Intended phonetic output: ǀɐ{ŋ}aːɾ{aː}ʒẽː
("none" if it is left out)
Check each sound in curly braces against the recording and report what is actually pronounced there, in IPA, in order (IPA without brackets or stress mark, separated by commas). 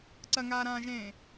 ŋ, ãː